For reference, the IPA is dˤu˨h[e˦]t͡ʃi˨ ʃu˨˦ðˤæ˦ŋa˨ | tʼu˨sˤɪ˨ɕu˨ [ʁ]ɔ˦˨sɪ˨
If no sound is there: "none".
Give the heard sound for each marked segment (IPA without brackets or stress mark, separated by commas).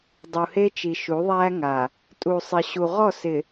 e˦, ʁ